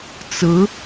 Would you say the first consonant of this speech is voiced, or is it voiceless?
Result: voiceless